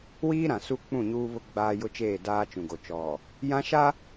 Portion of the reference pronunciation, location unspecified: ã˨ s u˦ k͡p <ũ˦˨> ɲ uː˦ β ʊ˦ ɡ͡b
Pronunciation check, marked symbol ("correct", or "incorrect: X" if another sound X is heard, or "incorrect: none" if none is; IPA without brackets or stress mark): correct